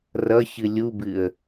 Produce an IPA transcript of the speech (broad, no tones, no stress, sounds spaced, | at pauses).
r ʌ ç ɨ lʲ u b ɨ ə̯